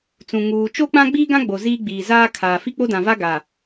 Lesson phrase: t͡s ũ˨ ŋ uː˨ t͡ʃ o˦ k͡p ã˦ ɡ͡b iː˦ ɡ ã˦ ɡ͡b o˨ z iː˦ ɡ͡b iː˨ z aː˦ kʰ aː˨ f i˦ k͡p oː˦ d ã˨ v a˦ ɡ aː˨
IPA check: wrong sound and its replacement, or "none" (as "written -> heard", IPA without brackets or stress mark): oː˦ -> o˦